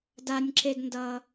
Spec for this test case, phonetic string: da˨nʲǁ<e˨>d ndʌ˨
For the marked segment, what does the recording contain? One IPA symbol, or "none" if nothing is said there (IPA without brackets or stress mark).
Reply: e˨